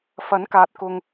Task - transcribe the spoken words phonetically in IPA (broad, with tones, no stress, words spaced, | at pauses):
fɐ˨˥nkaː˨t̚kʊ˨ŋ